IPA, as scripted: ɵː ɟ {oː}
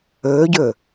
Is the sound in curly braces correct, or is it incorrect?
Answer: incorrect